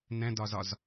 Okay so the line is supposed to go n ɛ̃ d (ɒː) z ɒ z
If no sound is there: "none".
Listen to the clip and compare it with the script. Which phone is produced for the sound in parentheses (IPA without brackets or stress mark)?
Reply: ɒ